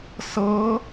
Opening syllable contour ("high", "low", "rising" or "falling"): rising